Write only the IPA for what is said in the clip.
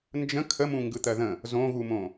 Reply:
n d͡ʒ ə̃ kʰ ə m ũ ŋ ɡ ɯ t̪ ɜ ð ə̃ | z õ ɣ u m õ

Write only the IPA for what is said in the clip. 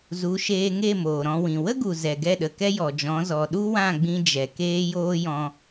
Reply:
z u˨˦ ʃ eː˧ ŋ e˦˨ m oː˨ ɾ ɔ̃˧ w ĩ˨ w ə˦ ɡ u˨ z ɛ˨ ɡ ɛ˦˨ ɗ ə˨ k ɛ˦ j ɔ˨ d͡ʒ ɔ̃˨˦ z ɔ˨ ɗ u˦ w ã˦˨ ɡ͡b ĩ˧ d͡ʒ ɛ˨ k eː˦ j oː˦ j ɔ̃˧

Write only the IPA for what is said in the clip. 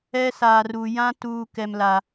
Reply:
ɛ˦ s aː˨ r u˨ j ã˦ t uː˨ k ɛ˨ m l a˨

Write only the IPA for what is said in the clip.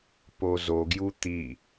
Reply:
p o z o ɡ j u t̪ i

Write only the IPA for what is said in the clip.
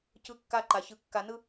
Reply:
c ɯ˦ kː a˦ ǃ a˩ ç ɯ˨ kː a˨ n ɯ˦

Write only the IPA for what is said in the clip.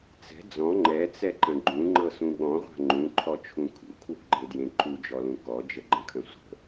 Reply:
t͡s ɛ̤ d͡z ɔ̃ ŋ͡ǃ ɛ t͡s ɛ ǃ ə̃ ɡ͡ǃ ũ ŋ͡ǃ ɤ s ũ ɠ ɔ̃ ʁʷ a̤ ŋ͡ǃ ũ ǃʰ ɔ t͡ʃʰ ũ kʰ ṵ kʰ w ṳ ɡ͡ǃ e d j ẽ ǃ u d͡ʒ ɔ l ũ k ɔ d͡ʒ ə ɡ͡ǃ ə̃ kʰ ə̃ sʷ ə̤

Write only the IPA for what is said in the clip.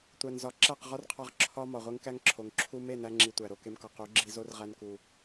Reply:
tʷ æ˨ n z ɒ˨˦ ǁ æ˦˨ q ʁ ɒ˦ r qʰ ɒ˧ ʁ ǁʰ ɒ˦ m ɒ˨ ʁʷ e˦ ŋ k æ˦ ŋ ǁʰ o˨ ŋ ǁʰ u˧ m e˦˨ n æ˧ ŋ͡ǁ i˨ tʷ æ˨ ɾ o˨ k e˧ m k ɒ˨ q u˨˦ ɡ͡ǁ i˧ z o˦ r ʁ æ˧ n k u˨

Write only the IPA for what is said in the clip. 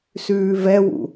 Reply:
s ʉː v ɛ w ṵ

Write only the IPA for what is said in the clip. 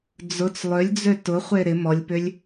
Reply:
d͡z ʊ t͡s lˠ ø lʲ d͡z ø t ʊ χʷ e ɾ ɪ m ɔ lʲ p ʏ lʲ

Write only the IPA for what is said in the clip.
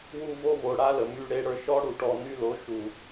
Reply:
w u˧ v o˧ v o˨ ɽ a˧ l ə˨ m y˧ ɽ e˧ ɽ ə˞˧ ʃ ɔ˦ ɽ u˨ ʈ ɔ˨ n y˦ l o˨˦ ʃ u˨

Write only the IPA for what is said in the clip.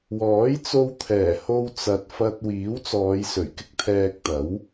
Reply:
w ɔː˨˥ j t͡s o˧ w t̪ʰ ɛː˨˩ h o˧ w t͡s ɐ˨ t̚ f ɐ˧ t̚ w iː˨˥ w t͡s ɔː˨˧ j s ɵ˨˩ ɥ k ɪ˥ k̚ t̪ʰ ɛː˧ k̚ t̪ ɐ˨˥ w

